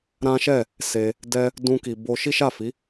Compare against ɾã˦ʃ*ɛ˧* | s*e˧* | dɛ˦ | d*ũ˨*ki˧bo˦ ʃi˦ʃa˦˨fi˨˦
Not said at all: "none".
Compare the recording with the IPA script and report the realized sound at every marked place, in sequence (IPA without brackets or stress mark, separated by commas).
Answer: ɛ˦˨, e˧, ũ˦